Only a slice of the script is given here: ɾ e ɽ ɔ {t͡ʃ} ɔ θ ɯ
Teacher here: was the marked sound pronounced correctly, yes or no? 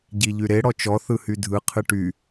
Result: yes